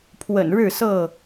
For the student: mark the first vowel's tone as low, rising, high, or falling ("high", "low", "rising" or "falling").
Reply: low